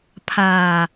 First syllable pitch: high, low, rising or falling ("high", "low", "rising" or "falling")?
low